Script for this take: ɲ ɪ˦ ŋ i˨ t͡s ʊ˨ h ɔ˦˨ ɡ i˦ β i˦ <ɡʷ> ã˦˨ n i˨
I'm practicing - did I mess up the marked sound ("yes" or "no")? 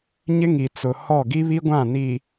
no